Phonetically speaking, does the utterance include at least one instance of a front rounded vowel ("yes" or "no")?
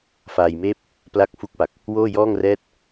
no